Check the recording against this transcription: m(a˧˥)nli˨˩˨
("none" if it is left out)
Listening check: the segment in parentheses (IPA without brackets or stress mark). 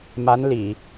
a˧˥